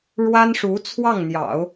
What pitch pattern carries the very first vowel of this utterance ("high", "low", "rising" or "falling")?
high